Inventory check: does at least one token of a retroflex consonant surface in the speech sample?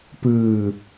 no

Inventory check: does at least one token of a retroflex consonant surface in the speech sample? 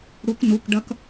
yes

